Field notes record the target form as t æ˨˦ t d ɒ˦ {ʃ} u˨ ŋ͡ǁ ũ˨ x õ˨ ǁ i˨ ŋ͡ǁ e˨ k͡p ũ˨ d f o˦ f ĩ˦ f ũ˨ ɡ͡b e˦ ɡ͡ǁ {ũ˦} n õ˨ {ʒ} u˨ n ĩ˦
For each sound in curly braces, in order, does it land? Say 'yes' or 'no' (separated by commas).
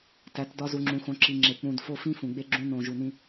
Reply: no, yes, yes